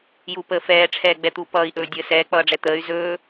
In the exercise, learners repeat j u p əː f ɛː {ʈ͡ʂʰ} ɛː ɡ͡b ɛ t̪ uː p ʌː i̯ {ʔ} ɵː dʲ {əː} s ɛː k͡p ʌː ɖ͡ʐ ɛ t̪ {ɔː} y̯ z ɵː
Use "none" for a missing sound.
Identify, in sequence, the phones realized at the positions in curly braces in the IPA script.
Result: ʈ͡ʂʰ, ʔ, əː, əː

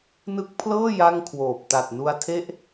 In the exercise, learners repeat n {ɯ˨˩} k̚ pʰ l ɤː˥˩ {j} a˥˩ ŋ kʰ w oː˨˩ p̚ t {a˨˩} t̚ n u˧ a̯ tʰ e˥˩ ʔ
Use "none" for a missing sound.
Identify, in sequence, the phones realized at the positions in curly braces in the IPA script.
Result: ɯ˦˥, j, a˨˩

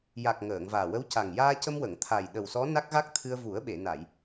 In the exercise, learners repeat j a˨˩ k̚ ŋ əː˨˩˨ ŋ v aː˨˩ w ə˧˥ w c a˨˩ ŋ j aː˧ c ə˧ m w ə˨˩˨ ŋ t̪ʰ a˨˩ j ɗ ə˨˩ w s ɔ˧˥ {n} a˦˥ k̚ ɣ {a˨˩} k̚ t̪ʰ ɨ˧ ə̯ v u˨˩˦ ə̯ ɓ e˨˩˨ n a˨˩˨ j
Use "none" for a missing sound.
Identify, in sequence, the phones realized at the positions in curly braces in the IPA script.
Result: n, a˦˥

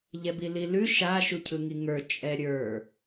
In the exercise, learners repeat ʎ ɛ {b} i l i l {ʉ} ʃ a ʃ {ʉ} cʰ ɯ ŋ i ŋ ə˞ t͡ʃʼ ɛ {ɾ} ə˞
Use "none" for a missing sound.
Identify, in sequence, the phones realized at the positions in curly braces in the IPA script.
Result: b, ʉ, u, ɾʲ

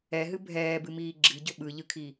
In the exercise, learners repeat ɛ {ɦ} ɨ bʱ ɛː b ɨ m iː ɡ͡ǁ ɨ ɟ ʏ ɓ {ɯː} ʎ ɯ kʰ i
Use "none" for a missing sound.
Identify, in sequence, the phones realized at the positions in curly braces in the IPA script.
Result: ɦ, ɯ

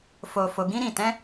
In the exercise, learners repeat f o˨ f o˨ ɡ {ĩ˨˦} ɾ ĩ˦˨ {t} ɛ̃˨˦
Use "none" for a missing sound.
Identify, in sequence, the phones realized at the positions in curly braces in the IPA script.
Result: ĩ˨˦, t

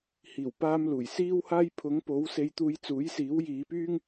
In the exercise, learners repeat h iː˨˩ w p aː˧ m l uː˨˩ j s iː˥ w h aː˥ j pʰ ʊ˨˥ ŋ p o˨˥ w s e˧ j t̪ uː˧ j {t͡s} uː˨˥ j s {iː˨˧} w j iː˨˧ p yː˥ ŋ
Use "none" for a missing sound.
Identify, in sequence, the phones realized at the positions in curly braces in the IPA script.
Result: t͡s, iː˨˥

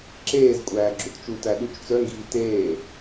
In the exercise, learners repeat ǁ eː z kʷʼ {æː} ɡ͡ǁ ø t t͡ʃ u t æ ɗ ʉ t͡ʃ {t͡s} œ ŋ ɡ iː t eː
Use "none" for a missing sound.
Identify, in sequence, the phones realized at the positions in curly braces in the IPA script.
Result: æː, t͡s

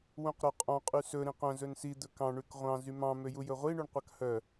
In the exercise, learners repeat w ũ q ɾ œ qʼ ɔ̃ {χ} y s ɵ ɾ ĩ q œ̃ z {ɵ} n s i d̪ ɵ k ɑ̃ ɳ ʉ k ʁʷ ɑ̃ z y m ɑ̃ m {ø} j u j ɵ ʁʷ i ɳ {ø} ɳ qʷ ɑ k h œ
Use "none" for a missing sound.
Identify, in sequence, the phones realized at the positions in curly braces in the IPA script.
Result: qʼ, ɵ, ø, ʉ

